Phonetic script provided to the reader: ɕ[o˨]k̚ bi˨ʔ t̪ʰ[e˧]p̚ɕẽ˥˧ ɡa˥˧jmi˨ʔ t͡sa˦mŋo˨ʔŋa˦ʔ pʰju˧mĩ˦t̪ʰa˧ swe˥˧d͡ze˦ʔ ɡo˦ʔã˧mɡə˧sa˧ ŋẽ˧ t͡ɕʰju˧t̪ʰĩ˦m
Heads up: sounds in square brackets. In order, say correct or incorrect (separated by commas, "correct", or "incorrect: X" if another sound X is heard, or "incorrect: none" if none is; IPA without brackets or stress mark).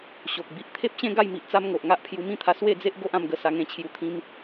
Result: correct, incorrect: e˦